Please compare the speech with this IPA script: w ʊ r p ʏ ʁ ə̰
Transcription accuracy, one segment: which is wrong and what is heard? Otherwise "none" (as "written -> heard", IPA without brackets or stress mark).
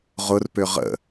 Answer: w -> ʁ